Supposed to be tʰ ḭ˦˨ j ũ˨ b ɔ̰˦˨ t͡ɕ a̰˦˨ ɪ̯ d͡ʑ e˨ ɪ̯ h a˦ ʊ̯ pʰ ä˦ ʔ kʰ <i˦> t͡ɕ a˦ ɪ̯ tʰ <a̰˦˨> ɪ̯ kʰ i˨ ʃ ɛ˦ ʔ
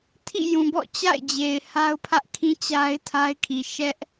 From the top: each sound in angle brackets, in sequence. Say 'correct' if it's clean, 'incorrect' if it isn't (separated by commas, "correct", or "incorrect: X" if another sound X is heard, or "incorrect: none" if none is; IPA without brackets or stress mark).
incorrect: ĩ˦, incorrect: a˦